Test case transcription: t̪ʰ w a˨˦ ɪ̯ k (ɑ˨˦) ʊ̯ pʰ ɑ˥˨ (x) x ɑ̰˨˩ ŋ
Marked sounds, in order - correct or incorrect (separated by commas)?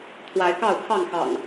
incorrect, incorrect